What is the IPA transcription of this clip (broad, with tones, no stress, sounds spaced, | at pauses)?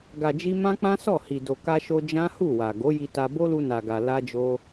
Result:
ɡ a˨ d͡ʒ i˧ m ã˦ k͡p ã˦ s ɔ˦˨ h i˨ d o˨ k a˧ ʃ o˧ d͡ʒ ã˦ h u˦˨ w a˨ ɡ o˨˦ j i˧ t a˧ b o˦ l u˧ n a˨ ɡ a˨ l a˧ d͡ʒ o˧